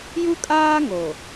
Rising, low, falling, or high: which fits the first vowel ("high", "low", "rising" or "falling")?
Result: high